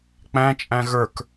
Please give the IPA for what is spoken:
k͡p æ̃ t͡ʃʼ æ̃ ɣ ə˞ k

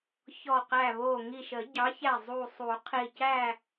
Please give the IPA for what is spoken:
ç ɔ˧˩ q æ˧˩ β o˧˩ ŋ i˧˩ ʃ ə˨˩˦ ɟ ɑ˨˥ ç æ˧˩ zˤ u˧˩ sˤ u˨˩˦ qʰ i˧˩ c æ˥˨

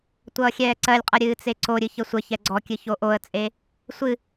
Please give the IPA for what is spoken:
tʷ ʌː xʲ ɛː ǀ ɜ lʲ qʼ ʌ ɾʲ ɨː t͡s e ǀ o ɾʲ ɨ ç ə sʷ ə ç ɛ ɡ͡ǀ ɔ kʲ ɨ ç o ʔ o ə̯ t͡sʼ e | sʷ ɨ

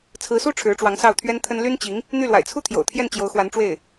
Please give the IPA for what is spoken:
t͡sʰ ɹ̩˧˥ s u˥ ʈ͡ʂʰ ɻ̩˧˥ ʈ͡ʂ w ɑ˧˥ ŋ s ɑ˥˩ ʊ̯ t̪ʰ ɥ ɛ˥ n t̪ʰ ə˥ n l y˥ n t͡ɕ i˧˥ ŋ | n̪ y˥˩ l w a̰˨˩ ɪ̯ t͡sʰ u˥ t̪ʰ j o̰˨˩ ʊ̯ t̪ʰ j ɛ˥˩ n t͡ɕ j o˧˥ ʊ̯ x w a˧˥ n ʈ͡ʂ w e˥˩ ɪ̯

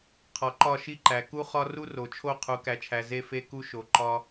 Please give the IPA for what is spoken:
qʰ ɒ˨ ǃ ɒ˦˨ ʃ i˦ ǃ æ˨ k u˧ χ ɒ˧ r u˦ r o˨ t͡ʃʰ o˦˨ qʰ u˨˦ k æ˧ t͡ʃʰ æ˧ z e˦ f e˦ k u˦ ʃ o˧ ǃ ɒ˦

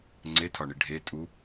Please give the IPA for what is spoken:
ŋ͡ǀ e tʰ ɒ ɳ i ɖʱ e tʼ u

